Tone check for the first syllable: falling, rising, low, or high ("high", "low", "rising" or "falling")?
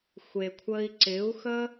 low